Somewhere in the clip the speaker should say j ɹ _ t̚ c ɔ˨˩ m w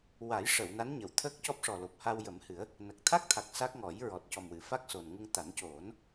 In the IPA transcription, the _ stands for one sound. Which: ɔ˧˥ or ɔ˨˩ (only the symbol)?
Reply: ɔ˨˩